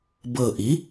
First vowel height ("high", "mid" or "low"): mid